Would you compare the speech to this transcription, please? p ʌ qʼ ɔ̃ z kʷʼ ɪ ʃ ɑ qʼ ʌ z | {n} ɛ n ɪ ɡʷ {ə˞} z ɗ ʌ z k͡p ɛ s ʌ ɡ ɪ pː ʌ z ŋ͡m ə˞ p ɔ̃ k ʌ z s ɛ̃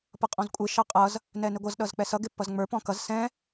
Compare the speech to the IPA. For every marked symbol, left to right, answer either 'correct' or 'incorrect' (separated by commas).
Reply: correct, incorrect